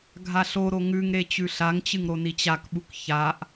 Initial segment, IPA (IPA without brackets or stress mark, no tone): ɡʱ